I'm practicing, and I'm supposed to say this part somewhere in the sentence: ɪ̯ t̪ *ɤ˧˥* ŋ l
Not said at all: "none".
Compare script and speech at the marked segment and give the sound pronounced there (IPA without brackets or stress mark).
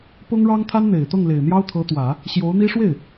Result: ɤ˥˩